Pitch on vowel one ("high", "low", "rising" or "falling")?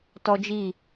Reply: high